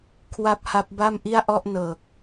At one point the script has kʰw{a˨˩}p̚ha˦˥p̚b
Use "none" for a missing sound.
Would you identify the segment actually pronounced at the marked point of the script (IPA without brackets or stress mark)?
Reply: a˥˩